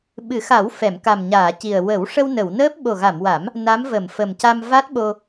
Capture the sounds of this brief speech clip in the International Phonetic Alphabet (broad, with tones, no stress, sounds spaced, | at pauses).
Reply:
ɓ ɨ˨˩˦ x a˨˩˦ w f ɛ˨˩˨ m k a˨˩ m ɲ aː˨˩˨ c i˨˩ ə̯ w ə˨˩˦ w ʂ ə˧ w n ə˨˩˨ w n əː˦˥ p̚ ɓ o˨˩ ɣ a˨˩˨ m w a˨˩˦ m | n a˧˥ m v ə˨˩˨ m f ə˨˩ m c a˧ m v a˦˥ t̚ ɓ o˧